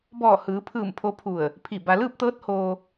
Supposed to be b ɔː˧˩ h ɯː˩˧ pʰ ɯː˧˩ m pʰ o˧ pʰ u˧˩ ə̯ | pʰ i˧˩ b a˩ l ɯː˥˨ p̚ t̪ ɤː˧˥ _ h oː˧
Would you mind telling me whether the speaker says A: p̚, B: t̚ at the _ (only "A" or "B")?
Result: B